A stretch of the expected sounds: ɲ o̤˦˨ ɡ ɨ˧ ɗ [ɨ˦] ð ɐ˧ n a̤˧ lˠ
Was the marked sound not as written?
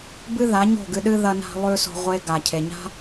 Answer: no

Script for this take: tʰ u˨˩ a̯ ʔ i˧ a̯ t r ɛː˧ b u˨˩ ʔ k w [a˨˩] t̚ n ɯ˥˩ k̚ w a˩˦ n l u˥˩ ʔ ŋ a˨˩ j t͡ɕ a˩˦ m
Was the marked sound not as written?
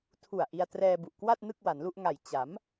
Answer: yes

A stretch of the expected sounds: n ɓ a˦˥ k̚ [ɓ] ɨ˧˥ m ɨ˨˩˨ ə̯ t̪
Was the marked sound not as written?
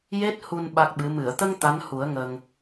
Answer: no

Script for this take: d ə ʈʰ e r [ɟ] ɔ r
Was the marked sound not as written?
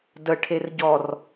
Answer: no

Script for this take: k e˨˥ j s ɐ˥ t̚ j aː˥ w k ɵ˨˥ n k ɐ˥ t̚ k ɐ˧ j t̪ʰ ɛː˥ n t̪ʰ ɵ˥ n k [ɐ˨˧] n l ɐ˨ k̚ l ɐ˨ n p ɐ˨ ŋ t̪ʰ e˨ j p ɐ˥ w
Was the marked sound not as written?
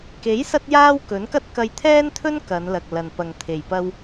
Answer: no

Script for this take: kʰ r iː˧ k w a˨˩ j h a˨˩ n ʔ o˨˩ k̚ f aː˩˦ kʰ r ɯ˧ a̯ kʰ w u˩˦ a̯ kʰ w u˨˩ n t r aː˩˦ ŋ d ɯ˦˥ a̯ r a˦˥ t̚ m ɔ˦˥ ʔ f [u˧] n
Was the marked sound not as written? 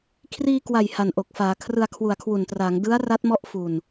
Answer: no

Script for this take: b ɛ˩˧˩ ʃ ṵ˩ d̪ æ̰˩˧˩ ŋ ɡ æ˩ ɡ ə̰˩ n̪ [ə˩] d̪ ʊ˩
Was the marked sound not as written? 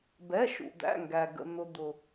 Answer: yes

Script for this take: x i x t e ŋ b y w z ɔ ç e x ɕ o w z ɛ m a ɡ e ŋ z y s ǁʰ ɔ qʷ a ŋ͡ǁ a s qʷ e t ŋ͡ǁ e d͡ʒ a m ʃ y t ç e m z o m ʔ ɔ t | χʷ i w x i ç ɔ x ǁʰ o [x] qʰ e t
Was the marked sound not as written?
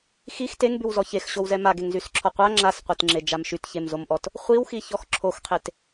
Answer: no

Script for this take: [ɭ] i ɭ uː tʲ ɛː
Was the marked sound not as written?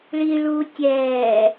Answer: no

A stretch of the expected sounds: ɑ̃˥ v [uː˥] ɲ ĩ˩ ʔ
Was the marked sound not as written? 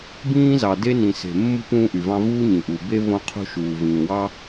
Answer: no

